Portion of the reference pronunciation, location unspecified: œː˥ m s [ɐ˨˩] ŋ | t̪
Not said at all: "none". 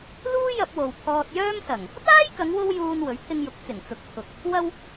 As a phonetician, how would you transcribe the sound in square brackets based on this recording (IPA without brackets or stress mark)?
ɐ˨˩